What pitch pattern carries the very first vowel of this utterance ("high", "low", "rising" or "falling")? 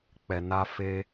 low